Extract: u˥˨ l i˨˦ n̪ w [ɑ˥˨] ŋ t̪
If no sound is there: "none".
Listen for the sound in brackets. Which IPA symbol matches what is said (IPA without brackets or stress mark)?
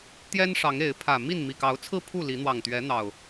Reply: ɑ˨˩